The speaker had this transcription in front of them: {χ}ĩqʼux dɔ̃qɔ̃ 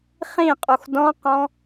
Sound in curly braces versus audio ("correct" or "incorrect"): correct